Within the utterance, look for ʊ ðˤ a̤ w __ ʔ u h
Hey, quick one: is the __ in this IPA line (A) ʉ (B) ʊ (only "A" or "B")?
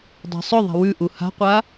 A